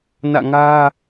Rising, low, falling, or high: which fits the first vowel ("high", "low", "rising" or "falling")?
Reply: falling